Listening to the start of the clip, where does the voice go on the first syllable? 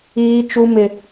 high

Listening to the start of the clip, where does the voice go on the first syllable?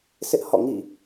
high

